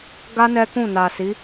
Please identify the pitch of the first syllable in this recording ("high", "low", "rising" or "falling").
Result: high